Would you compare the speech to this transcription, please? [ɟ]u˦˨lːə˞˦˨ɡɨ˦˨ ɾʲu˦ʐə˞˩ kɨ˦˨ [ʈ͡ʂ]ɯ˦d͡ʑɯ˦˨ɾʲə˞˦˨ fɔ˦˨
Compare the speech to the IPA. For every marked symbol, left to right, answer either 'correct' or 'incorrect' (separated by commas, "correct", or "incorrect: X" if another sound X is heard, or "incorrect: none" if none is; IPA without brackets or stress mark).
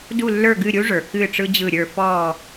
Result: incorrect: d, correct